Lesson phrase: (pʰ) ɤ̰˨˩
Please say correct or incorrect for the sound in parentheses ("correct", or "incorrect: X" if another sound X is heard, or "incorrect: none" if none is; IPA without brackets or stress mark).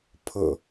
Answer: correct